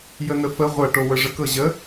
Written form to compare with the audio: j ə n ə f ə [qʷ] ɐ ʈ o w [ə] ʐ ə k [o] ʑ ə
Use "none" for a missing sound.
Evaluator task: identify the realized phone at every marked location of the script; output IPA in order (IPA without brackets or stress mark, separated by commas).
ʁʷ, ə, ɤ